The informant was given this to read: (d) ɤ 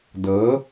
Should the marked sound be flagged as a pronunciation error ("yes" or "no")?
no